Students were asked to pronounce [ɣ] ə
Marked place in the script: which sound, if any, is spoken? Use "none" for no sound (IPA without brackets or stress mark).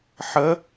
ħ